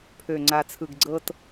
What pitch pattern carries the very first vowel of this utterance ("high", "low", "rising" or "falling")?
low